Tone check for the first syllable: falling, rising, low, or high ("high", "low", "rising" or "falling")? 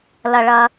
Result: low